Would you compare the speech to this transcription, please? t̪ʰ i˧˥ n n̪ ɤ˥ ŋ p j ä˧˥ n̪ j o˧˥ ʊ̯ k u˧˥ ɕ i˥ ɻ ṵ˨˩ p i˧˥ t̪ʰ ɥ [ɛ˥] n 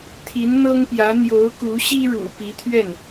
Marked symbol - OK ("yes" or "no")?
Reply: no